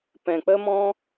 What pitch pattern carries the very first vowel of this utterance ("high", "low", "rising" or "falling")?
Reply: low